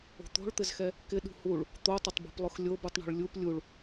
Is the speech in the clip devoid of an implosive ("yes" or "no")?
no